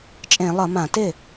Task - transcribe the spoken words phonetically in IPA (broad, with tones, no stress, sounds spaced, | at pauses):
t͡ʃʼ ẽ˧˩˧ lˠ ʌ˧˩˧ m ã˧˩˧ t ɪ˥˩